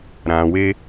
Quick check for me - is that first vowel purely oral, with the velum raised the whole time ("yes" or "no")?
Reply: no